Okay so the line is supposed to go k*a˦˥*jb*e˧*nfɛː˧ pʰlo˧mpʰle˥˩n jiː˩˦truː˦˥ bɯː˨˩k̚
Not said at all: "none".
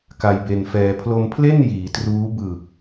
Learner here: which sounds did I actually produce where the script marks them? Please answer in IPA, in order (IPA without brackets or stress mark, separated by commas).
a˧, e˧